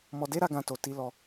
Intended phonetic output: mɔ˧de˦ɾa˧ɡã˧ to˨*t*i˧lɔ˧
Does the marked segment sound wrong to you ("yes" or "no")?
no